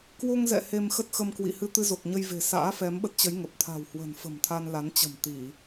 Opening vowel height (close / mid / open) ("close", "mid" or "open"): mid